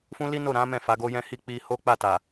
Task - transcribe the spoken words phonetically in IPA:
f ũ˦ l i˦ n o˦˨ ɾ ã˨˦ m ɛ̃˦˨ f a˨˦ ɡ o˦ j ɛ̃˦ h i˧ k͡p i˧ h o˦ k͡p a˦˨ t a˨

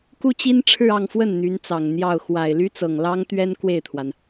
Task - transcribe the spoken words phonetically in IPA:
k u˥ t͡ɕ i˥ n ʈ͡ʂʰ ɻ̩˥˧ ɑ˥˧ ŋ f w ə˥˩ n n̪ y˧˥ n t͡s ɑ˨˩ ŋ n̪ j ɑ˥˩ ʊ̯ x w a˨˩ ɪ̯ l y˥ t͡s ɤ˨˩ ŋ l ɑ˥ ŋ t̪ ɥ ɛ˥ n k w e˥˩ ɪ̯ t̪ʰ w a˩ n

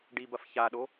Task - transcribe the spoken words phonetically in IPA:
ɖ i b ɐ f ç a ɗ o

